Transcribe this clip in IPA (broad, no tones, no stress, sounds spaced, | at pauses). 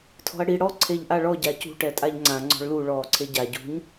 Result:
tʰ ɔ̤ ɐ̯ ɽ i ɽ ɔ ǀʰ e ʎ ʔ a ɭ ɔ ɟ a c ṳ ʈ ɛ tʼ a ʎ ŋ͡ǀ ã ŋ͡ǀ ɔ̤ ɭ l u ɭ ɔː ǀʰ e ɟ a ɟ ṳ ɲ